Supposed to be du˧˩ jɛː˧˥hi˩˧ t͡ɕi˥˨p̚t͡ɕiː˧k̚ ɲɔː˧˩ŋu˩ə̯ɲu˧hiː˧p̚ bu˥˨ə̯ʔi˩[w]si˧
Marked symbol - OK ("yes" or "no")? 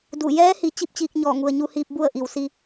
yes